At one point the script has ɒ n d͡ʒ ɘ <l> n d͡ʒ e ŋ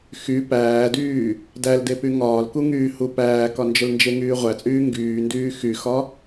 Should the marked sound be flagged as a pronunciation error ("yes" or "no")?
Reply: no